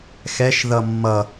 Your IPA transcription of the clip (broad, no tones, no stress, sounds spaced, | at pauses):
x ɛ ʃ ð ʌ mː ʌ